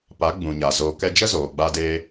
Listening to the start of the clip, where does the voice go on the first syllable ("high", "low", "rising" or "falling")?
rising